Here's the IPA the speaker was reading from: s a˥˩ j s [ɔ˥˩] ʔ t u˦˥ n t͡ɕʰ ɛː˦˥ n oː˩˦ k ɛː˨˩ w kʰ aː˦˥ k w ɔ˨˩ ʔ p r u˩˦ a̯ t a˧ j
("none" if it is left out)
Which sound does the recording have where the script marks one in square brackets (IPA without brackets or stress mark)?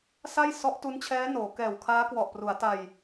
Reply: ɔ˦˥